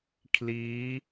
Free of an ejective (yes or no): yes